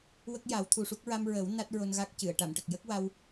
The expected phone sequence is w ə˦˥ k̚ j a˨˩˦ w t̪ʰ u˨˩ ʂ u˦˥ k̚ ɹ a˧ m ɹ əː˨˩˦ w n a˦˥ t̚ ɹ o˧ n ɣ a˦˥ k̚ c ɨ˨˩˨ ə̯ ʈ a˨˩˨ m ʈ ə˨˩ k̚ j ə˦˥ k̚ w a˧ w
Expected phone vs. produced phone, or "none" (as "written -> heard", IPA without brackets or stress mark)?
none